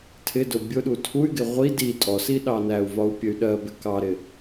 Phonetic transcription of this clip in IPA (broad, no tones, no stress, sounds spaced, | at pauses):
tʰ ɪ d ʊ bʲ ʊ ɗ u tʰ u y̯ ɡ ɪ ʁʷ i d i tʼ ɔ s i ɗ ɑ n æ u̯ v ɒ u̯ pʲ ə y̯ ɗ ɜ b ɪ k ɑ ɾ ɪ